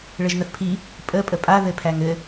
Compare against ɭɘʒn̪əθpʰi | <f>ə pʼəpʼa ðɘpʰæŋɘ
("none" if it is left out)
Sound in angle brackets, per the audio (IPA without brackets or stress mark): pʼ